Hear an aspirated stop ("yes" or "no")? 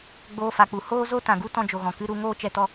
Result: no